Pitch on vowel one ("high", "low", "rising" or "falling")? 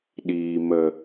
low